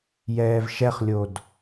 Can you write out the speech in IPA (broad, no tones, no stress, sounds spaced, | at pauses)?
j ɛː v ʃ ɛ χ lʲ o d